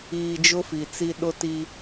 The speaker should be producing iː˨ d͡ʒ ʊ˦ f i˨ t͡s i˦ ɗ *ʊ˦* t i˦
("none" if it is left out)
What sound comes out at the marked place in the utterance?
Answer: ʊ˦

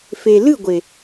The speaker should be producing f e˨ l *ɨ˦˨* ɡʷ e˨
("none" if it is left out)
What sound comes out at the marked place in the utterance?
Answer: ɨ˦˨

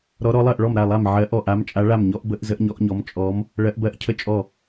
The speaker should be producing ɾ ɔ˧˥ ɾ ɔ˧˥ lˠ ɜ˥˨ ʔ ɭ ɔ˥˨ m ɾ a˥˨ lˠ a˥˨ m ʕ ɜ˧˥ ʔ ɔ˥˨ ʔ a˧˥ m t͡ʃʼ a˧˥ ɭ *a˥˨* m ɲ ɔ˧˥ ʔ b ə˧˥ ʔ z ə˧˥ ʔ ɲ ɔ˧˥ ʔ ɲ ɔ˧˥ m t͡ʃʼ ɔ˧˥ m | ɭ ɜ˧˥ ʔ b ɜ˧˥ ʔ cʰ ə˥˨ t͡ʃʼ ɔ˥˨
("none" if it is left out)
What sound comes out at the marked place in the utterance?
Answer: a˥˨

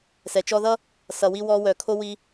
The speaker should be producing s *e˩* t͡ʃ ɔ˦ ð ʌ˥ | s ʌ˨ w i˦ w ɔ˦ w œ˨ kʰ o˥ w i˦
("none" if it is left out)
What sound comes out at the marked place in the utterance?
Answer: ɛ˩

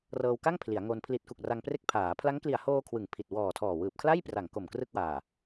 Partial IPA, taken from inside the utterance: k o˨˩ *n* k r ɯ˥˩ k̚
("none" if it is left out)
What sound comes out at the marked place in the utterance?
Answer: m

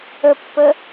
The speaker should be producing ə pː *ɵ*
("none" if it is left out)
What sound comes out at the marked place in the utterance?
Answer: ə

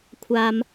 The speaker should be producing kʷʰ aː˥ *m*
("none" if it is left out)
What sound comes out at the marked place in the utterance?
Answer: m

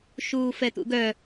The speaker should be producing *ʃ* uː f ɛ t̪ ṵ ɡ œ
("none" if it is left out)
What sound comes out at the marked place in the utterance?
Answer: ʃ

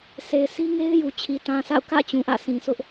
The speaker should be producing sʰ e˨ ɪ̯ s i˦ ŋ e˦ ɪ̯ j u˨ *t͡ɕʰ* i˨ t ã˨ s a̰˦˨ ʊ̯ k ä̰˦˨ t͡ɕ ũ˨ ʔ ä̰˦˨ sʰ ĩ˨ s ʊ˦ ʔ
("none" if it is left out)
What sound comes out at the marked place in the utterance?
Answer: t͡ɕʰ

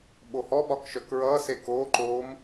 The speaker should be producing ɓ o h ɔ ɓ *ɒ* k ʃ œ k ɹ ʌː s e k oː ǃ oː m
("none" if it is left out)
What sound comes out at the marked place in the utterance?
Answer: ɒ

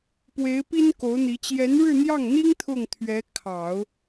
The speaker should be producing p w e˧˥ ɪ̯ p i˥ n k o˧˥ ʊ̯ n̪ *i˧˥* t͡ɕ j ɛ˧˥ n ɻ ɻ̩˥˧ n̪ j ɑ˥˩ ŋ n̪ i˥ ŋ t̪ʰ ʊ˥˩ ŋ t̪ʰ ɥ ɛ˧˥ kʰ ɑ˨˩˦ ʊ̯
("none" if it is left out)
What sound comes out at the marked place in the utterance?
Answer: i˧˥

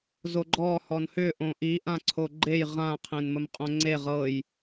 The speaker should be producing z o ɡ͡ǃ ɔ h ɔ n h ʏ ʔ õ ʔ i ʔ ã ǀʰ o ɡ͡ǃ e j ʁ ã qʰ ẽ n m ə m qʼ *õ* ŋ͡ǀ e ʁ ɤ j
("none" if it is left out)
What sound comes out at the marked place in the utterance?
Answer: õ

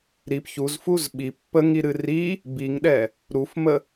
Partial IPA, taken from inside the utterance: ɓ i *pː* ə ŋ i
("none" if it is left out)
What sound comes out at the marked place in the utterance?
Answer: pː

